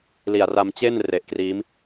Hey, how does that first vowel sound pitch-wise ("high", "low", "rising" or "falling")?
low